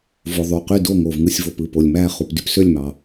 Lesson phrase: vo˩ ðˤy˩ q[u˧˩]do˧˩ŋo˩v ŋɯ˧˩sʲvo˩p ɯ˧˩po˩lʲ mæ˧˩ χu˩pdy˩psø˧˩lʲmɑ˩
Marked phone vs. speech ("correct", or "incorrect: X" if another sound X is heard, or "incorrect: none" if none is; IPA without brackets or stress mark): incorrect: y˧˩